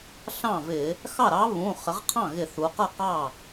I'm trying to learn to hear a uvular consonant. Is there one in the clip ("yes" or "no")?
yes